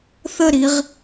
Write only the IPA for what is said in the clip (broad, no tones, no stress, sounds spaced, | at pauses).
θ ə ɾ i ʁ